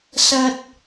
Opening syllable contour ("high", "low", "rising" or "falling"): high